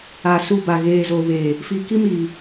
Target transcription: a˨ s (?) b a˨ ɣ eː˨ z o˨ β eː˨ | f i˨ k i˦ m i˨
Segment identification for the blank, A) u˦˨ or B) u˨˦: A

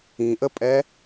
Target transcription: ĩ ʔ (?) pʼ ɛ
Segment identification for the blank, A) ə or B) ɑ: A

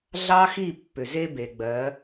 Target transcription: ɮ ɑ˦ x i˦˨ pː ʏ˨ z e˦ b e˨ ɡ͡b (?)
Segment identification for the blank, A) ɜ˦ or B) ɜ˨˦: B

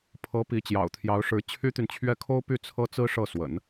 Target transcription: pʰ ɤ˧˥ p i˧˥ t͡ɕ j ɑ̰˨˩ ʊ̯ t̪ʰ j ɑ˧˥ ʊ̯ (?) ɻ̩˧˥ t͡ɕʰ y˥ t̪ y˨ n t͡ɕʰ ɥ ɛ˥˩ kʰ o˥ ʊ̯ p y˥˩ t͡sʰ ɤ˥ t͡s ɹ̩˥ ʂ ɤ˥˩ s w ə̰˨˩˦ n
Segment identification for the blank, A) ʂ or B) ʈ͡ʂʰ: A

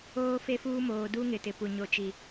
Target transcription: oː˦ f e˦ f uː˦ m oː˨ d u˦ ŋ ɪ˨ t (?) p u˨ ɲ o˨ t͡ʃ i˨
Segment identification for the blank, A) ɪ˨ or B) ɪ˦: A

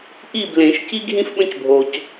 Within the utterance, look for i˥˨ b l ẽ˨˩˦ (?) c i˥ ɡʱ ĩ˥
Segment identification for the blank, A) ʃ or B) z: A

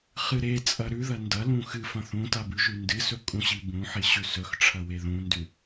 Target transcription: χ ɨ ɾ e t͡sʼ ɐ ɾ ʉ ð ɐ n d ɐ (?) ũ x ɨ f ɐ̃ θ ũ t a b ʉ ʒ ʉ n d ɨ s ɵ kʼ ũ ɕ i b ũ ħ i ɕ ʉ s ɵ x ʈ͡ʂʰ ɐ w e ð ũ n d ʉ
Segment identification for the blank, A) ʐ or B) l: B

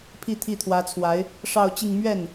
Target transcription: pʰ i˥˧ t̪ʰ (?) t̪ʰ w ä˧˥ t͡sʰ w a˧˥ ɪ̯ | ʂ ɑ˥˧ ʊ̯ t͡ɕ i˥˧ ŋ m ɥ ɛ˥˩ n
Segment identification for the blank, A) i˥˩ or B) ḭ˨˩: A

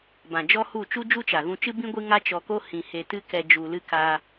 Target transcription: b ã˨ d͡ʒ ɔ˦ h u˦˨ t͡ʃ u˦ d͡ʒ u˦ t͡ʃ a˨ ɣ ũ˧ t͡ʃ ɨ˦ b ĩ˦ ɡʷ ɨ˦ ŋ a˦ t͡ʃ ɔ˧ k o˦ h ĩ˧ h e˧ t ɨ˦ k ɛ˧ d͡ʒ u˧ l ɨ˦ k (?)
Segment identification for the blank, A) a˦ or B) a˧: B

